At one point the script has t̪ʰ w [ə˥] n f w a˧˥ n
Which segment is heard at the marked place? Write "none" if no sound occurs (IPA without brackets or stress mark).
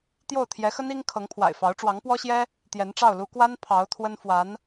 ə˥